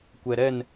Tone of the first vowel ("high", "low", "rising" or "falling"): low